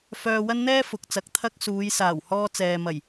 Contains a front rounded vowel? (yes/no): yes